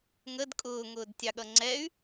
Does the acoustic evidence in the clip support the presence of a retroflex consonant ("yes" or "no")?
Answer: no